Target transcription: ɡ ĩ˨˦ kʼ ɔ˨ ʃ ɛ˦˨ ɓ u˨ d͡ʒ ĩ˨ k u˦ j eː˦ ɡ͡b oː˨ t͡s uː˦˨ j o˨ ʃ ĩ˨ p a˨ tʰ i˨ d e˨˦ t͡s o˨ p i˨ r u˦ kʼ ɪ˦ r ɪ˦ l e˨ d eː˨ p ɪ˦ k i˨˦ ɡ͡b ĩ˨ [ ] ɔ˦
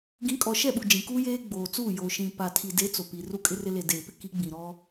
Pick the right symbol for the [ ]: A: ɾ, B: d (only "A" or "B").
A